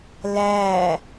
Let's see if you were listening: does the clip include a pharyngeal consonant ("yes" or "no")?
no